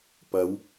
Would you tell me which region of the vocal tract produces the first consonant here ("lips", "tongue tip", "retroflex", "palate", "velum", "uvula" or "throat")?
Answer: lips